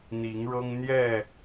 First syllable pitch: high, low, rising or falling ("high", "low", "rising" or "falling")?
rising